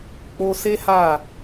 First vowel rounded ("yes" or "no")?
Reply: yes